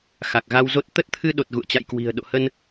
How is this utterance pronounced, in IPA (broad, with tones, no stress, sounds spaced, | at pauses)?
x a˨˩ k̚ ɣ a˧ w z o˦˥ t̚ t̪ ə˦˥ t̚ t̪ʰ ɨ˧ ɗ o˨˩ t̚ ɣ ṵ˧˨ ə̯ t͡ɕ a̰˧˨ j k w i̤˨˩ ə̯ ɗ o̰˧˨ h ə˧ n